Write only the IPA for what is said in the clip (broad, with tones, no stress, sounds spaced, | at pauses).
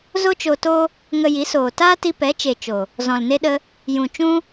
z o˦ t͡ʃ o˧ t o˦ | ŋ ə˧ j i˨˦ s oː˨ t aː˦ t i˧ p ɛ˨˦ t͡ʃ e˨ t͡ʃ o˨ | z ɔ̃˨ l n e˦ ɗ ə˦ | j ũ˨ t͡ʃ ũ˦